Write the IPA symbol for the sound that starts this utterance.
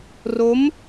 r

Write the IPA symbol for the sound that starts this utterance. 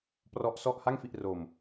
p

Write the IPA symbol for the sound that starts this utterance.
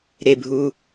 ɾ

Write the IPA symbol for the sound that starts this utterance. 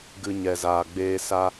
ɡ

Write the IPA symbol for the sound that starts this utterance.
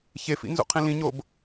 ç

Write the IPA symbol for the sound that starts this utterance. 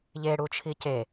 ʎ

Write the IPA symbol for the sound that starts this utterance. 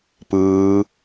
p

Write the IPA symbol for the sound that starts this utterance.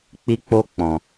k͡p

